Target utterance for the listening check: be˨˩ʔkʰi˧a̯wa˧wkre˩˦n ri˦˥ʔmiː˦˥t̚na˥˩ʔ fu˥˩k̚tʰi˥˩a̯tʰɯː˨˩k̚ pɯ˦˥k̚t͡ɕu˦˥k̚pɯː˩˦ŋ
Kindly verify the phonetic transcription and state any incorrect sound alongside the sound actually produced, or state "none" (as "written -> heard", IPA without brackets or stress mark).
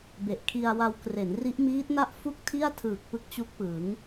none